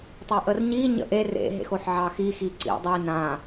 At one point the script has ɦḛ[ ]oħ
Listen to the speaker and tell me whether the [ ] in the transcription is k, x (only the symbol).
x